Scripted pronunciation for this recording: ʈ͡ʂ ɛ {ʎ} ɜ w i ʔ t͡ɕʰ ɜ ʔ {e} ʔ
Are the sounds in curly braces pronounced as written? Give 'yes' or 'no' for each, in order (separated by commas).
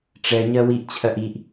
no, no